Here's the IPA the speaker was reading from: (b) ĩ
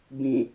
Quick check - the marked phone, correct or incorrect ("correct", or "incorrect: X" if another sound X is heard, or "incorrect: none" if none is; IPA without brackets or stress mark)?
correct